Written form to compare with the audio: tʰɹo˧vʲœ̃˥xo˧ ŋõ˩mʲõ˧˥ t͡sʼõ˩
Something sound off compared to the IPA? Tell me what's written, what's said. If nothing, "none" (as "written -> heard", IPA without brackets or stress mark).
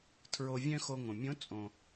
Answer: none